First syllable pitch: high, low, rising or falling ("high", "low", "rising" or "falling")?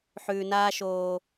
low